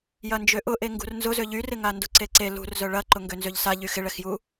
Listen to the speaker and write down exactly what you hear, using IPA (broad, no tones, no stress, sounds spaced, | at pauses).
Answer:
j ɐ n d͡ʒ ø ʔ ʊ ʔ e ŋ ɡ ṳ r n z ʊ z ø ʎ y r ɪ ŋ a n d ʊ ǀ e ǀ e l ṳ r z œ ɭ ɐ ǃ ʊ ŋ ɡ ø n z ø ʎ s a ʎ y x ɪ ɭ ɛ x j u